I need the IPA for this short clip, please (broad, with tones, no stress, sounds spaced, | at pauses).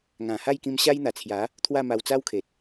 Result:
ŋ ã˨˩ h a˥˧ j k ĩ˧ m ɕ a˦ j n̪ a˨˩ t͡sʰ j a˨˦ | t̪ʰ w a˥˧ m a˧ w t͡s a˦ w kʰ e˨ t̚